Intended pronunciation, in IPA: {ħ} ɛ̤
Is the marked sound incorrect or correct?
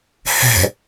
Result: incorrect